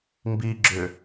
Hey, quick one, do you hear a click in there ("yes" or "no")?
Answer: yes